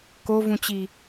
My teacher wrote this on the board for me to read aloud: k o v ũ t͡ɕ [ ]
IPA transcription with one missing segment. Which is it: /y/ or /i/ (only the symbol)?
i